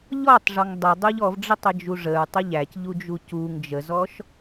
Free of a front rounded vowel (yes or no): yes